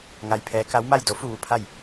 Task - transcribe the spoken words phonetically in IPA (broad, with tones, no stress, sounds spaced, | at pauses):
ŋ a˧ j pʰ ɛː˧˥ k a˧˥ w m a˥˨ j d o˧˥ f u˥˨ ʋ u˥˨ pʰ a˥˨ j